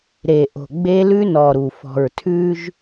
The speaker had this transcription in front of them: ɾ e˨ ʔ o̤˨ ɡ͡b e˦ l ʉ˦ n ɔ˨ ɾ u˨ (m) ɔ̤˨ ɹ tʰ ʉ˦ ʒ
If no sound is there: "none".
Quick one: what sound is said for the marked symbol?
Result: f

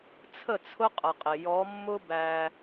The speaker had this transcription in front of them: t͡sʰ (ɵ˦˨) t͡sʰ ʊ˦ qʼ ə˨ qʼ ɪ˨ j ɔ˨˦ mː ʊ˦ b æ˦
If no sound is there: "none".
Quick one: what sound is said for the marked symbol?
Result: ə˦˨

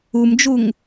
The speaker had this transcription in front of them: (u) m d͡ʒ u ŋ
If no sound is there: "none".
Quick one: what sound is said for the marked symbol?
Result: u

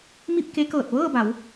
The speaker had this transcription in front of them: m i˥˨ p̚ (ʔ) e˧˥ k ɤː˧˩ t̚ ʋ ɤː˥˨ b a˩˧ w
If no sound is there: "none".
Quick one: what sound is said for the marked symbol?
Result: k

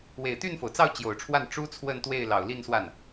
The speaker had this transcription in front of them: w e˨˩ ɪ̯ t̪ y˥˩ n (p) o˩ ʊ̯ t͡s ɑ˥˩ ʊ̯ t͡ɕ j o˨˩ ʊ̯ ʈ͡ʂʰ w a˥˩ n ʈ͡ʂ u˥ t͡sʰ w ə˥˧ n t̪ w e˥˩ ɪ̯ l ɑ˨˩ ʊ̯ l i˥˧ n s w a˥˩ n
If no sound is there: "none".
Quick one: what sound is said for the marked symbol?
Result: f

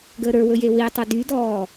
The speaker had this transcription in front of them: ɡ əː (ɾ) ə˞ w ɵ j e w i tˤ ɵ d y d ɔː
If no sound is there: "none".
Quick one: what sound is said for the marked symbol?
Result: ɾ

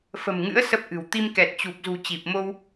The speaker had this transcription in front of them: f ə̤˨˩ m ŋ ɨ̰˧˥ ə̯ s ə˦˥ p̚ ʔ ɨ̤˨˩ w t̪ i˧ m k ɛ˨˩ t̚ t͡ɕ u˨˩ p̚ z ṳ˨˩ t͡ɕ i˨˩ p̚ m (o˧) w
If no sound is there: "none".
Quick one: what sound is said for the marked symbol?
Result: o˧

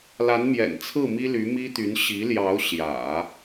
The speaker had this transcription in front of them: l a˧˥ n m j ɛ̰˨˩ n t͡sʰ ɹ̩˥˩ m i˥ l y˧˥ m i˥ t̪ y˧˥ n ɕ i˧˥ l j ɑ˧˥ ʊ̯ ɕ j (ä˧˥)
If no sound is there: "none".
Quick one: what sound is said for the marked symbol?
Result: ä̰˨˩˦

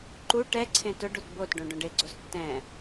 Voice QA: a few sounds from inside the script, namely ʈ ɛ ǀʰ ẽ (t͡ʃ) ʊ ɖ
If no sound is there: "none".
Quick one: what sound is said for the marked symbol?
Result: t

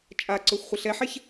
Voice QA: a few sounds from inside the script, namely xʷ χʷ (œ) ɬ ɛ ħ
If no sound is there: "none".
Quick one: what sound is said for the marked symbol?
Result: ə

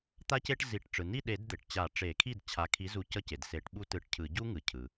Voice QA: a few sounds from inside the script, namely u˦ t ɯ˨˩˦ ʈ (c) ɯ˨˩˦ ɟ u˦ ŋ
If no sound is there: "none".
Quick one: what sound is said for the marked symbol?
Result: cʰ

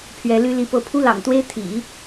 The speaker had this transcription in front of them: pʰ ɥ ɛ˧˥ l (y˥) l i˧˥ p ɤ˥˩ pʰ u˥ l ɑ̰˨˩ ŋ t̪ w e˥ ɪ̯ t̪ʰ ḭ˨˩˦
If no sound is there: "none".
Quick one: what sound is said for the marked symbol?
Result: y˥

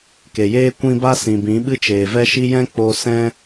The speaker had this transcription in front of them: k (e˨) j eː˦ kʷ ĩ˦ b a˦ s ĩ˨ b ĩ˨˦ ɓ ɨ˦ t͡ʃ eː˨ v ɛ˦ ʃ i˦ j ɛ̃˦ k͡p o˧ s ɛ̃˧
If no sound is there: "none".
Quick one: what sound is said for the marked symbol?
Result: e˨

